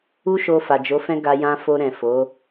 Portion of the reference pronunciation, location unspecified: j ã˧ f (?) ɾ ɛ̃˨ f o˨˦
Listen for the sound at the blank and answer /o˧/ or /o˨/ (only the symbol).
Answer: o˧